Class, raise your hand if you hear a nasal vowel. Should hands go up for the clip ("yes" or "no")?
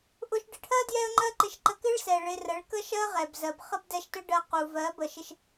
no